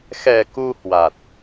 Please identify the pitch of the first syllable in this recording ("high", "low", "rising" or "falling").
low